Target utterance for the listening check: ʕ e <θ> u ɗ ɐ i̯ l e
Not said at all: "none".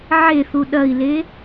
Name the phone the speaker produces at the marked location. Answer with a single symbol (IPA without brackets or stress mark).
θ